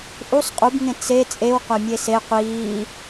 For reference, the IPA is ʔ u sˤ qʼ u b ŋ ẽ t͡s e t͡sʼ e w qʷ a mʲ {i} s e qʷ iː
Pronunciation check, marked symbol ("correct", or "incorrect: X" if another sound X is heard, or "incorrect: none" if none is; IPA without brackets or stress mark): incorrect: e